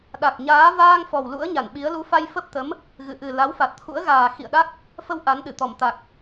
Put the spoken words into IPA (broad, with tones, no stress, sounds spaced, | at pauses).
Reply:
ɗ a˨˩ k̚ ɲ aː˨˦ v aː˧ ŋ f ɔ˨˩ w l ṵ˧˥ ə̯ ɲ a˧˩ n ɓ i˨˦ ə̯ l u˨˦ f a˧ j f ə˦˥ p̚ t̪ ə˨˦ m | ɣ ɨ˧˩ ʔ ɨ˨˩ l a˨˦ w f a˨˩ t̚ t̪ʰ ṵ˧˥ ə̯ ɣ aː˨˩ x ḭ˧˨ ə̯ ɗ a˦˥ k̚ | f ə˧ w ʔ a˨˦ n ɗ ɨ˧˩ t̪ ɔ˧˩ m t̪ a˨˩ k̚